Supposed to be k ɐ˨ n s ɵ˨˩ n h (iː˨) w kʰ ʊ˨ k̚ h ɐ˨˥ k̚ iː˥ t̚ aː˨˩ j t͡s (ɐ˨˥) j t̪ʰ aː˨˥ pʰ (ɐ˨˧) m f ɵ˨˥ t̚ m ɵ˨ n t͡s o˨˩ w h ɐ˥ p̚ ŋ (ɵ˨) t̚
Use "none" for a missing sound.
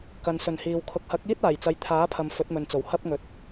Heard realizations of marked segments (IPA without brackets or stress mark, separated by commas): iː˨, ɐ˨˧, ɐ˨, ɵ˨